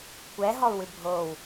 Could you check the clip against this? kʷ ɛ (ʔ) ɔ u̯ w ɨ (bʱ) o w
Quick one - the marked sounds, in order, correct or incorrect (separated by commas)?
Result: incorrect, correct